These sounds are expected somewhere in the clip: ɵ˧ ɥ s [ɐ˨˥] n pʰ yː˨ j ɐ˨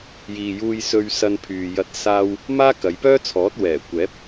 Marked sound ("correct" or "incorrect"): incorrect